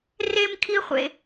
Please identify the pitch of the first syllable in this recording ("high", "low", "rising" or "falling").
high